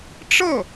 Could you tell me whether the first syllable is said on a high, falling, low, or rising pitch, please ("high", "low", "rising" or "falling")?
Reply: falling